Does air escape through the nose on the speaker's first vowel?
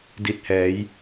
no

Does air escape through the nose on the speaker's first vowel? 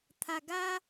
no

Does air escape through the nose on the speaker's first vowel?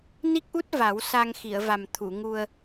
no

